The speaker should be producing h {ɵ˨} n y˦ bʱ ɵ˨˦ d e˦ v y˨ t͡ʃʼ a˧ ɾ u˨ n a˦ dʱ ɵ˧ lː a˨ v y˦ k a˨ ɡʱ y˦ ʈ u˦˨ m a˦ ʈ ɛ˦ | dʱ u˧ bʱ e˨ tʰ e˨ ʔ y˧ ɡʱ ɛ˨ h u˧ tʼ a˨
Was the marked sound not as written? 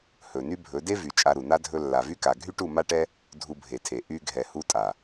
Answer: no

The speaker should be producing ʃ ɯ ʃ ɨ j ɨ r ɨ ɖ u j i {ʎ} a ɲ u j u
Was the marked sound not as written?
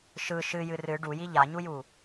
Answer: no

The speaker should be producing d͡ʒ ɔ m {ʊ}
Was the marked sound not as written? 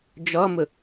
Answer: no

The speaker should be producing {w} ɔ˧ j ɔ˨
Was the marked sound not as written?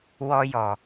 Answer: no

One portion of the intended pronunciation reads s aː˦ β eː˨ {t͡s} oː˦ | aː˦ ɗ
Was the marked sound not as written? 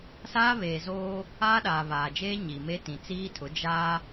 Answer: yes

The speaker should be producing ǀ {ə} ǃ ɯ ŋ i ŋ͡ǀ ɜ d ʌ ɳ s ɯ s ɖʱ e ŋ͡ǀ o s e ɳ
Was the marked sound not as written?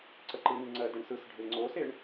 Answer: no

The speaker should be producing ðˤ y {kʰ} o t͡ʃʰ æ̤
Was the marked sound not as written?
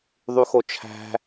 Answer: yes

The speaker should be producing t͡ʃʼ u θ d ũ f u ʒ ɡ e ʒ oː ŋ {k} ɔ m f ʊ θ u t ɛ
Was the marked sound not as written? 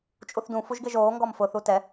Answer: yes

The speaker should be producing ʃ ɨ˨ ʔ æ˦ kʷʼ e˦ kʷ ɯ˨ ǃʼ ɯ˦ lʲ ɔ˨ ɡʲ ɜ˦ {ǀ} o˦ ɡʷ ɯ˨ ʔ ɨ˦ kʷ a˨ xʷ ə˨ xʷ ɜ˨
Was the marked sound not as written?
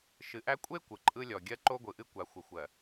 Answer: yes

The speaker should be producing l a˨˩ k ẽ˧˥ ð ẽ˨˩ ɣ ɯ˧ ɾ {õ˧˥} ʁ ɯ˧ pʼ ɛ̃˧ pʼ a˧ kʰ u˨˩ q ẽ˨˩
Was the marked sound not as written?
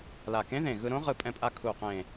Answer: no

